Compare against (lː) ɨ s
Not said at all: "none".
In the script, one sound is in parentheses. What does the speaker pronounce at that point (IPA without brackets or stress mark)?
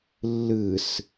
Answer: lː